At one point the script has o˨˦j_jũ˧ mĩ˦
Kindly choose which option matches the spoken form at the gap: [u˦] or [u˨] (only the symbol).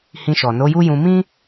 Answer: u˦